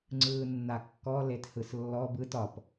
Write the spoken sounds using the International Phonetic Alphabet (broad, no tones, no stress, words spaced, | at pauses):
ŋ͡ǀɯːnːakːɔ lethɯslːɔb ɯt ɒp